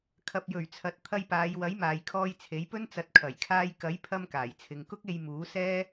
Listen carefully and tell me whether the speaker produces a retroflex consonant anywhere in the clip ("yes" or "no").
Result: no